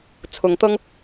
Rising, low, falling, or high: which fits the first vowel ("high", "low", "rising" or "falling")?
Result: rising